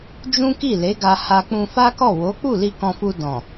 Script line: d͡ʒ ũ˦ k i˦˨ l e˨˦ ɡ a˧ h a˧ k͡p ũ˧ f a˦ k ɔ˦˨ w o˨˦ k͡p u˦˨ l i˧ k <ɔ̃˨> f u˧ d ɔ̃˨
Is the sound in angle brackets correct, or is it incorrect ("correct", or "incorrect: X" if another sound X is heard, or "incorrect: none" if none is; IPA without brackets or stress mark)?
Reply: incorrect: ɔ̃˧